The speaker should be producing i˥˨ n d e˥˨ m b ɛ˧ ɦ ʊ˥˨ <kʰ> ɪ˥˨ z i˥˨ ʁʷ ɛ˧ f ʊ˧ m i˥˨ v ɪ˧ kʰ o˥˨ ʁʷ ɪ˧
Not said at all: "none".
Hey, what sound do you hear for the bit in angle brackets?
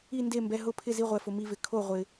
pʰ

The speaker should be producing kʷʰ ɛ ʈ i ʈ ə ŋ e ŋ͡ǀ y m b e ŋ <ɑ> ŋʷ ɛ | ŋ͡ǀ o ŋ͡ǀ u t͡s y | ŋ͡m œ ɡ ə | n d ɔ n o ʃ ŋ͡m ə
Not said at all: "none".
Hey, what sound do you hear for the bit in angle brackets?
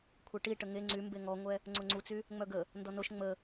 ɔ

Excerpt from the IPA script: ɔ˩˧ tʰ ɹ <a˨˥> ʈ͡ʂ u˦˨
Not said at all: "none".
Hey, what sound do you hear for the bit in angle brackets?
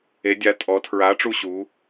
a˨˥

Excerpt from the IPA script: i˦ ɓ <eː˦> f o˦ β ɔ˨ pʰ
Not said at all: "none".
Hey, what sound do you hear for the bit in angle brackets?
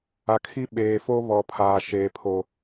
eː˨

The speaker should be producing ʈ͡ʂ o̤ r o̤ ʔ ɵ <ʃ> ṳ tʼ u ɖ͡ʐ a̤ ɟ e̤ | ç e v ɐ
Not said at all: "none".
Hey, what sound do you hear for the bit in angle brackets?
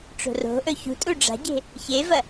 ç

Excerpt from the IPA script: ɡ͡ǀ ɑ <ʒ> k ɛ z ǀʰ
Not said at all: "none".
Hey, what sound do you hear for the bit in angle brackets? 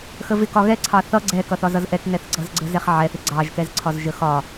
ʒ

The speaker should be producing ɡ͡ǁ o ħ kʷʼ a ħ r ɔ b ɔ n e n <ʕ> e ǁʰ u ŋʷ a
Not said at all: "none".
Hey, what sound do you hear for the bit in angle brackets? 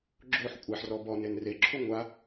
r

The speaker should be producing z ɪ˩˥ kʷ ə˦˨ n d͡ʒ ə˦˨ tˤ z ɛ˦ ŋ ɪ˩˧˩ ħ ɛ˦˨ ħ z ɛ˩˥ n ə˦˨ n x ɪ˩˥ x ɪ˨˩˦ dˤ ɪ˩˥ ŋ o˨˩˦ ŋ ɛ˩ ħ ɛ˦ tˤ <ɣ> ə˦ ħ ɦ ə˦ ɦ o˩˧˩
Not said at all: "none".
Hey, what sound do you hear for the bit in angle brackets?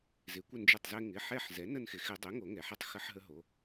x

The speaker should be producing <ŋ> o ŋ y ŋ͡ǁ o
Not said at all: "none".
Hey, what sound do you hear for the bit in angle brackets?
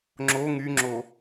ŋ͡ǁ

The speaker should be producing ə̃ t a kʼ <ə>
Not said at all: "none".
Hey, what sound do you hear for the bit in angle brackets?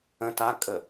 ə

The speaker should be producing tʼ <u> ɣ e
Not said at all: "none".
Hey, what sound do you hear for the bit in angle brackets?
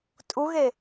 u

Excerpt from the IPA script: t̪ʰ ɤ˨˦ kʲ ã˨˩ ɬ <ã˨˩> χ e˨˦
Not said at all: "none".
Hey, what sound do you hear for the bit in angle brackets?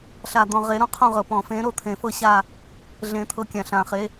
ã˨˩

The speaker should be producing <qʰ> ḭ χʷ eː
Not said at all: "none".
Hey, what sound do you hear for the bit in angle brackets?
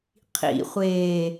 qʰ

